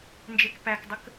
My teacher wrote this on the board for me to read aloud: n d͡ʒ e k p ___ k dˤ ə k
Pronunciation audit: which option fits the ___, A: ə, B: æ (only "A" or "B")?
B